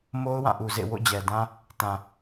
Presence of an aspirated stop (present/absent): absent